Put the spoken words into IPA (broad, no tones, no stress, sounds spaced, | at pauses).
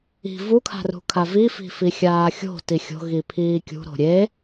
i̤ v u kʰ a̤ r ṳ kʰ a v i f i̤ f i xʲ aː xʲ o̤ t i xʲ o̤ ɣ i pʰ iː kʲ ṳ ɾ o̤ ɾʲ e